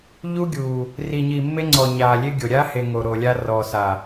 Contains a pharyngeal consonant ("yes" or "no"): no